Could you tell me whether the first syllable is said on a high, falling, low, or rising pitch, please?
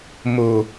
low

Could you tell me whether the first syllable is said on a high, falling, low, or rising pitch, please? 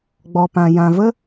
low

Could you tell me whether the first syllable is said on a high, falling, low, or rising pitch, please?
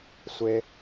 high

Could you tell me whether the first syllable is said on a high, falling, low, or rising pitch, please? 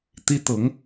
high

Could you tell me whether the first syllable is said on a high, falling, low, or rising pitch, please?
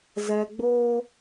low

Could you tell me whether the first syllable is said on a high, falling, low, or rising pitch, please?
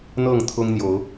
falling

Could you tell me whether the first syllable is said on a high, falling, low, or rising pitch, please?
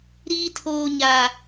high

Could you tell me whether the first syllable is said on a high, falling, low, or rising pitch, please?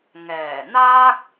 low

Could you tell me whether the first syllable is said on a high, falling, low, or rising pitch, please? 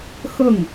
falling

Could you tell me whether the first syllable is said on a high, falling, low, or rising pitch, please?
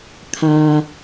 high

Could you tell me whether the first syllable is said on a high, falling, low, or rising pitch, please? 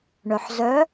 low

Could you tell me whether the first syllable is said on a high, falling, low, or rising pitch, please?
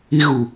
high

